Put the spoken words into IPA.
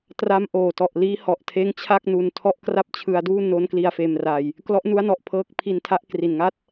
t r a˦˥ m ʔ oː˨˩ t ɔ˨˩ ʔ l iː˦˥ h ɔ˨˩ ʔ tʰ eː˦˥ ŋ t͡ɕʰ a˥˩ k̚ n u˧ n tʰ ɔ˥˩ ʔ k r a˥˩ p̚ t͡ɕʰ ɯ˧ a̯ d uː˥˩ n o˦˥ n k l i˧ a̯ f eː˧ m r a˧ j | k l ɔ˦˥ ʔ n u˦˥ a̯ n ɔ˨˩ ʔ pʰ ɤː˦˥ k̚ pʰ i˧ n tʰ a˦˥ ʔ k r i˨˩ n ŋ a˥˩ t̚

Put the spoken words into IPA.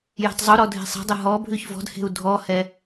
j e̤ tˤ zˤ u ɾ ɔ dʱ e̤ sˤ e̤ dˤ ə ɦ ɔ bʱ ʉ ç v ɔ̤ d h e̤ u̯ dʱ ɔ h ɛ

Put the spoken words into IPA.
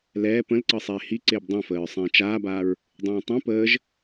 l ɛː p ə̃ l ǀ ɤ sˤ eː h i ǀ ɪː b dˤ ẽ f əː ɹ sˤ ẽː t͡ʃ aː b aː ɹ | dˤ ẽː tˤ ẽ p əː ʒ

